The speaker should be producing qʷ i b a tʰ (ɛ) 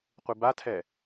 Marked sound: correct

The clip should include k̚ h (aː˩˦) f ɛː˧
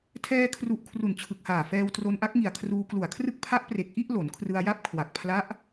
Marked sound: incorrect: aː˨˩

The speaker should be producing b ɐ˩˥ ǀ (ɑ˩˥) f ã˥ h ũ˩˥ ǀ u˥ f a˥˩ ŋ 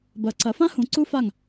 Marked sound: incorrect: ɐ˩˥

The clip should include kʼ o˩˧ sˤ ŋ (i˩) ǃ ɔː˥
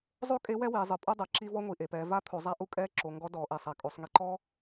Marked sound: incorrect: i˧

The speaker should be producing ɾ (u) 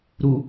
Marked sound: correct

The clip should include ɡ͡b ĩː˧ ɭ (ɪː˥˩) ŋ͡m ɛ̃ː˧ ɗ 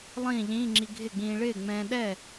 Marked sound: correct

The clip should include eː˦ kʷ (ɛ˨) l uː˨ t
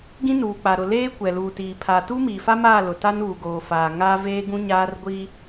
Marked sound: correct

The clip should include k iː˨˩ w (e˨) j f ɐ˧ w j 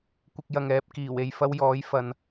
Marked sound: correct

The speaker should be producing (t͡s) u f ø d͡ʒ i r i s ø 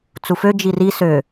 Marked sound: correct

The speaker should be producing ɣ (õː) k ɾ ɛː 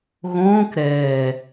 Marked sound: correct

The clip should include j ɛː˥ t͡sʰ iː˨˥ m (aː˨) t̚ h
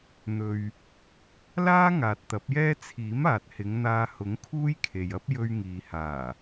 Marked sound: correct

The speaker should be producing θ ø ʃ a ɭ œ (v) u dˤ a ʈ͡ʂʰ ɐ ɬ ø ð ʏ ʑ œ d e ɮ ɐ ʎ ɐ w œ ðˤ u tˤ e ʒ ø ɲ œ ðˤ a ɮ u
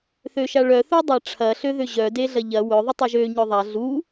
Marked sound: incorrect: θ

